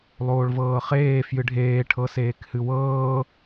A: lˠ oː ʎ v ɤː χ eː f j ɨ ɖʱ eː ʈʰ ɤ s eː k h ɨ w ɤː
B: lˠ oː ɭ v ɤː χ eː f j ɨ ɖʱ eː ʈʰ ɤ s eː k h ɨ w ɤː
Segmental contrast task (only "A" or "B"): B